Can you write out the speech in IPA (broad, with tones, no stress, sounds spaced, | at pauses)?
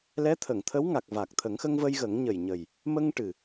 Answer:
l ɛ˧˥ t̪ʰ ə˨˩˨ ŋ t̪ʰ ə˧˥ w ŋ a˨˩ k̚ v a˨˩ k̚ t̪ʰ ə˨˩˦ ŋ x ə˧ ŋ v ə˧ j ɣ ə˨˩˦ ŋ ɲ ə˨˩ j ɲ ə˨˩ j | m ə˧ ŋ ʈ ɨ˨˩